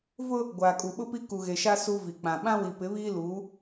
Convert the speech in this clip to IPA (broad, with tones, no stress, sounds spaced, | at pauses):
v ʊ˦ | ɡʷ aː˨ kʼ u˨ ɓ ʊ˦ p i˦ k u˨ ɣ e˨ ʃ a˦ s u˦ v i˨ k͡p ã˨ ɓ ã˦ w i˨ p ɪ˨˦ β iː˦ l uː˨˦